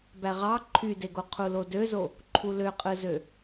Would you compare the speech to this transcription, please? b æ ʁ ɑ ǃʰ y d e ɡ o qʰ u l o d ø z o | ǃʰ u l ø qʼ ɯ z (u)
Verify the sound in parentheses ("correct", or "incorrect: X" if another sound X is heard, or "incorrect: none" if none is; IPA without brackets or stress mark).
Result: incorrect: ø